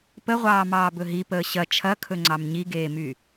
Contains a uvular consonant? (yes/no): yes